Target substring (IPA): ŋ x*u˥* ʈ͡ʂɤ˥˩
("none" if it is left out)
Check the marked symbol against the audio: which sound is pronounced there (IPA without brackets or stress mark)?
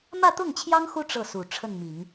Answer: u˥